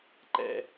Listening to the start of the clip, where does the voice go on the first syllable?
low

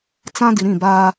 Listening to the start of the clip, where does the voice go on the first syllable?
high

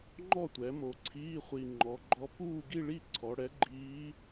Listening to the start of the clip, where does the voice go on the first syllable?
falling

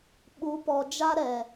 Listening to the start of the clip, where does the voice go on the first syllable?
rising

